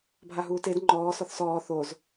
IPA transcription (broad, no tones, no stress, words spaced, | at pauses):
bʱaɦuːted ŋ͡ǃɔː sɔθsɔː θoz